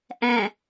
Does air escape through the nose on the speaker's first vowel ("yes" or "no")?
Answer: yes